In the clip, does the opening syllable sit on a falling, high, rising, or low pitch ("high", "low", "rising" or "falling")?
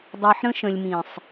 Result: low